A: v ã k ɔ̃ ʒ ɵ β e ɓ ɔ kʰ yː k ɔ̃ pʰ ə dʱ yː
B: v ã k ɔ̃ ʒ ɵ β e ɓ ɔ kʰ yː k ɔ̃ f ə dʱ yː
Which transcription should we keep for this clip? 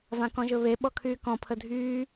A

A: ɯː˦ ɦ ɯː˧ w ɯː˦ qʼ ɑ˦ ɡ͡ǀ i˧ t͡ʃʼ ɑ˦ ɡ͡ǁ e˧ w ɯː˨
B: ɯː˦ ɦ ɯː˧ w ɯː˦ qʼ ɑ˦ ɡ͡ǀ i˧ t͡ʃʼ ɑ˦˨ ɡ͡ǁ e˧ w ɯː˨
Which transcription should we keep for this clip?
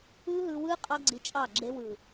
B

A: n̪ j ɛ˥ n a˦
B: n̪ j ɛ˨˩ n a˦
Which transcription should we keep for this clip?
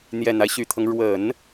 B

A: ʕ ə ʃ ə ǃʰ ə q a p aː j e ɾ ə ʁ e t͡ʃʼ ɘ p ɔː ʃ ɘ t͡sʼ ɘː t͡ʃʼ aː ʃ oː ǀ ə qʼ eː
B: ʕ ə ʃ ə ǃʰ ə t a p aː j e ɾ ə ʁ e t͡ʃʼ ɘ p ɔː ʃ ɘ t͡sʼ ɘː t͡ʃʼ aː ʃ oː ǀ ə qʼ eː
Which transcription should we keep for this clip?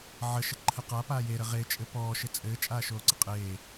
A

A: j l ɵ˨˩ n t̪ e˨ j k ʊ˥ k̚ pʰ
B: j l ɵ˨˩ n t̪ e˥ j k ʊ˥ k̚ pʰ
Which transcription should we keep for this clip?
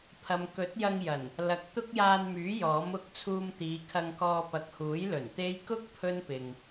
B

